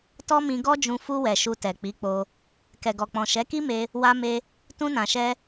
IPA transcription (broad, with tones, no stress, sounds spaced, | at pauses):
t ɔ˦ m ĩ˧ ɡ ɔ˦ d͡ʒ ũ˧ f u˧ w ɛ˨ ʃ u˧ t ɛ˨ k͡p i˨˦ k͡p o˧ | k ɛ˨ ɡ ɔ˨ k͡p ɔ̃˨ ʃ ɛ˨˦ k i˦ m e˧ | w a˧ m e˧ | t ũ˧ n ã˨ ʃ ɛ˧